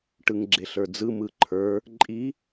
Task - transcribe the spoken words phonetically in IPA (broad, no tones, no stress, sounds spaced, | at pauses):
ʈ ɯ ŋ ɡ͡ǁ e ɬ ə˞ d͡z ɯ m ɯ ǃʰ ə˞ | ǃʼ i